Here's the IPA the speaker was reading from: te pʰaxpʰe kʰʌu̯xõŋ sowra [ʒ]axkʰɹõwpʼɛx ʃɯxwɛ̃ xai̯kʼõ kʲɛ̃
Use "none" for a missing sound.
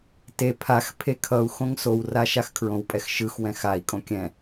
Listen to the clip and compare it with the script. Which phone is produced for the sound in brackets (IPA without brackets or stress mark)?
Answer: ʃ